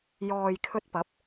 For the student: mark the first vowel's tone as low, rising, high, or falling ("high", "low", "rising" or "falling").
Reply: low